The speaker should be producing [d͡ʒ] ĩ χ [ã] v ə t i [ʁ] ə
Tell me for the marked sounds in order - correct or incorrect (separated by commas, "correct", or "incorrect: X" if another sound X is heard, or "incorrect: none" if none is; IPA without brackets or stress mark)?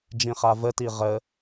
correct, incorrect: a, correct